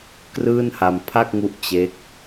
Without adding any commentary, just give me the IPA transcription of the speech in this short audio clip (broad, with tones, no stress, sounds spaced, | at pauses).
k r ɯː˥˩ n h a˧ m pʰ a˥˩ k̚ ŋ u˦˥ ʔ t͡ɕ e˦˥ k̚